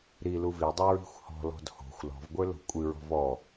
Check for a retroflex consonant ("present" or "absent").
absent